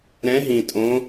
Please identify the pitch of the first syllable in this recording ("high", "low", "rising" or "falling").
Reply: rising